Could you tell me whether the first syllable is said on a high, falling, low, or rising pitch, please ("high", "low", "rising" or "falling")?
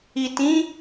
low